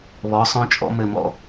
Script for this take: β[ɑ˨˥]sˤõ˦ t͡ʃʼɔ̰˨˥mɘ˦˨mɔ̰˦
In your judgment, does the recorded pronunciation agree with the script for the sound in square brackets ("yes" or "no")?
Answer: no